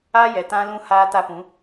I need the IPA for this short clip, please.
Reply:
a˦ j ɛ˨ t ã˦ l ũ˦ h aː˦ t a˦ p ũ˨˦

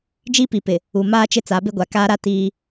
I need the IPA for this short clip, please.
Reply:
d͡ʒ i˦ p i˨ p ɪ˨ | u˨ m aː˦ t͡ʃ ɪ˦ t͡s a˨˦ b ɪ˦ ɡʷ a˨ k aː˦ ɾ a˦ t iː˦

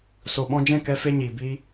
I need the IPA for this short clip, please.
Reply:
s o˨ ɓ ɔ̃˧ d͡ʒ ɛ̃˦˨ k ɛ˦ f e˦ ɲ iː˨ b iː˦

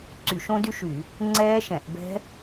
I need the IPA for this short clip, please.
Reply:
ǀ y˧˩˧ ʃ õ˦˥ d y˦˥ ʃ y˧˩˧ | ŋ͡ǀ ɛː˦˥ ʃ ɛ̃˧˩˧ ʔ b ɛ̤˦˥

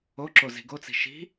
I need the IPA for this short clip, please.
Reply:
o ǁ o z i̤ ɡ o t͡s i̤ ʃ i̤

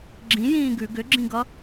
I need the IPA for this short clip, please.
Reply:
ɡ͡ǁ ĩ j ĩː ɡ ʉ ɡ ʏ ɡ͡ǁ ĩ ɡ ʌ

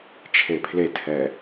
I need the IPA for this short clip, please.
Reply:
t͡ʃʰ e pʰ l e tʰ ɛ

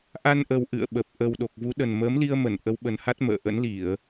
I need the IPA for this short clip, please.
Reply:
ʔ a˧ n ʔ ə˨˩ w ʔ ɨ̰˧˨ ə̯ ɓ ə˨˩ p̚ ʔ ə˨˩ w ɗ o˨˩ k̚ v u˨˦ ɗ ə˨˩ n m əː˨˦ m l i˧ ə̯ m ə˧˩ n ʔ ə˨˦ w ɓ ə˨˩ n h a˦˥ t̚ m ə̰ː˧˨ ʔ ə̰˧˥ n l i˧˩˨ ə̯

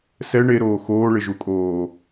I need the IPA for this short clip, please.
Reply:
s ɛ ɳ e ɾ oː x oː ɭ ɪ ʒ u kʼ oː

